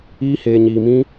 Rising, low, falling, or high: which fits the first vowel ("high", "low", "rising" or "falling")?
high